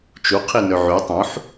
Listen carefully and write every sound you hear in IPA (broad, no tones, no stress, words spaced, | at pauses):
t͡ʃuqʰinø ʕy tˤũħ